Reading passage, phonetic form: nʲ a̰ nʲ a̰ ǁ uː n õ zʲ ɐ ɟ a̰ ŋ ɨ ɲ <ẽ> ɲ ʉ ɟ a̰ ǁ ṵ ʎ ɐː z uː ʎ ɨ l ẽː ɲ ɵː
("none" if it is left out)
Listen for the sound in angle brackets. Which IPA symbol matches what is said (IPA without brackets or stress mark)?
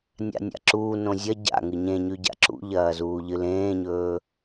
ẽ